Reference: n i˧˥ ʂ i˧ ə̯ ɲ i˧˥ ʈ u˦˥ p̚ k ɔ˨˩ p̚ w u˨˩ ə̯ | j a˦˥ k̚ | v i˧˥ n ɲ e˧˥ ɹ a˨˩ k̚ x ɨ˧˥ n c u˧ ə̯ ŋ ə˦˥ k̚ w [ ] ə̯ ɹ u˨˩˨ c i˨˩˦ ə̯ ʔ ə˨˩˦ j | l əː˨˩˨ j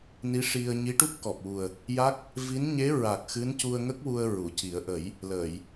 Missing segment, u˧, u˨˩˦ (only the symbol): u˧